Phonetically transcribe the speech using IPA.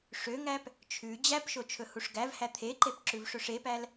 ʂøŋæp | t͡ʃʰʉ d͡ʑæpʃo t͡ʃʰɵhuʂɡævhæ t̪ʰeǃep ǁʉvʂɵʂepæl

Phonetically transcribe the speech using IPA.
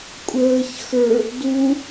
kʷʼəːç xə˞ | du

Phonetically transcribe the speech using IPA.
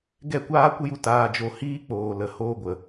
ɡɛ˦˨kʷaː˦kʷə˦ju˧ taː˧d͡ʒo˧ hiː˦k͡poː˨lə˨ hoː˧ ɡʷə˨

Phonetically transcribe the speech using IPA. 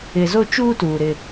ɪ˨zo˦ t͡ʃuː˦tuː˨ ɾɪ˦

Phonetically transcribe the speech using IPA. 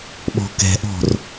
ɓɔ̤kɛ̤ʔɔ̤r

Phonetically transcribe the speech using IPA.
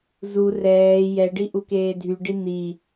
zu rɛː jɛɖi ʔukeːdʱyɖi n̪i

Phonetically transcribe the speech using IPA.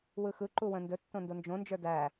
wɯxɯǃu wə̃ndɵtːõ ndond͡ʒõnd͡ʒə˞ dæ

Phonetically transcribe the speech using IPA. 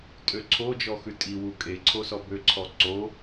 tʼøǀʰo d͡ʒɔxʉtʼi wukʼe ǀʰosɔbø ǀʰɔǀo

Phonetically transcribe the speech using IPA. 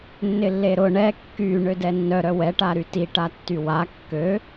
nːɪlːeɾʊ ɳɛ kːy ɳødɛnːœ ɾœwɛ ʈaɾyti ʈatːywa kːø

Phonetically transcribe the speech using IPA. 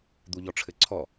d̪uʎɔʈ͡ʂʰɘǀʰɔ

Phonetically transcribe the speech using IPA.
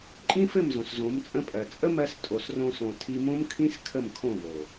ǃʼĩ˦fɘ˦˨m zõ˨szõ˨˦mt͡sʼə̃˦pʼɜ˨ t͡sʼə˦mɜ˧s tʼo˨srõ˧sõ˨ tʰi˧mõ˦mkʰĩ˦s kʰə˦˨mkʰõ˦˨vo˨

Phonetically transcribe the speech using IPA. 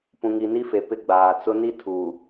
pũ˨ŋi˨ni˦fe˨ pɪ˦ ɡ͡baː˨ t͡sʊ˦ ni˦tʰuː˨

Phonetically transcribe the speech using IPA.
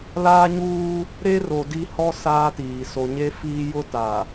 laː˦ɲuː˦ | ɾe˦ro˨ di˦hɔ˦ saː˦tiː˨ so˨ɲe˦ fiː˦ jʊ˦ta˨

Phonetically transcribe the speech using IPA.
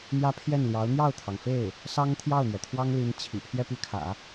n̪jä˥pʰjɛ˥˩nljɑ˧˥ʊ̯ n̪jɑ˥˩ʊ̯t̪ʰɑ˩ŋfe˥˩ɪ̯ | sɑ˥ŋ t̪ʰjɑ˥˩ʊ̯n̪ɥɛ˩t̪ʰwɑ˥ŋli˧˥n t͡ɕʰḭ˨˩ pʰjɛ˥˧py˥˩kʰä̰˨˩˦

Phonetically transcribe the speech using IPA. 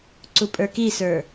ǀupʼə˞kisə˞

